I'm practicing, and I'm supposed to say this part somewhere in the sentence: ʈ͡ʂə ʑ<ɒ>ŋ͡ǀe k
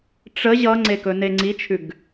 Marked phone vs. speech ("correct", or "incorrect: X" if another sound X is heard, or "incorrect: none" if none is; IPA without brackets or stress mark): incorrect: ʌ